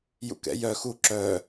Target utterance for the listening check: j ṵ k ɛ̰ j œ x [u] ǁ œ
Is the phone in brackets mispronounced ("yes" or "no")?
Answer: no